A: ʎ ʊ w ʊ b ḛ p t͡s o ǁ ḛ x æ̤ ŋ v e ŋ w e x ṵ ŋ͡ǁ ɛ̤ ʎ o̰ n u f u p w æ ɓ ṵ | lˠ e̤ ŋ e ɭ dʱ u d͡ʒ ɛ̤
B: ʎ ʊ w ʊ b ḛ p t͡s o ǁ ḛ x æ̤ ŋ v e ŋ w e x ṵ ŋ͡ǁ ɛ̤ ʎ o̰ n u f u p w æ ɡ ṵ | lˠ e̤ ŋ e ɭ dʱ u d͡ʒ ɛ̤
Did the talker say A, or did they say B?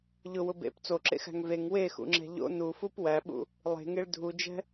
A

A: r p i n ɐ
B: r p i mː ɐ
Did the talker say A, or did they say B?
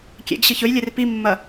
B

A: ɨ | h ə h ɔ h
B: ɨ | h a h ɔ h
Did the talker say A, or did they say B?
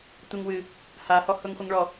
B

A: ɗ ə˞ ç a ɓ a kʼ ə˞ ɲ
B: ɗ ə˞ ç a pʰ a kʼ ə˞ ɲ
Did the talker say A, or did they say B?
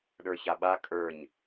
A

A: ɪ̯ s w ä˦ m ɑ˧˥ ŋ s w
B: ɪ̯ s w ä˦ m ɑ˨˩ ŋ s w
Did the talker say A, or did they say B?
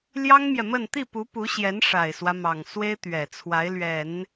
B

